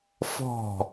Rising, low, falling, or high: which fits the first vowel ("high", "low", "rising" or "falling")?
falling